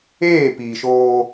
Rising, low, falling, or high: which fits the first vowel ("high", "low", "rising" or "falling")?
falling